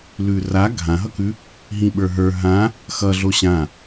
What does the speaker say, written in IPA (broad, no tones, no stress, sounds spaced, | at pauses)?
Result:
l ʉ r a ɡʱ ã ɦ ʌ k ʉ | ɦ ĩ ɓ ə˞ ɦ ə˞ ɦ ã | x ʌ ɮ o ɕ ã